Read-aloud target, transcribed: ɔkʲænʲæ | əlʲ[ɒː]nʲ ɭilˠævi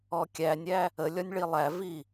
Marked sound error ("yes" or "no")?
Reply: yes